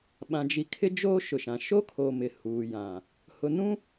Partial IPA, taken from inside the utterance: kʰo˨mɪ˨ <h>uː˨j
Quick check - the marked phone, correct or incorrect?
correct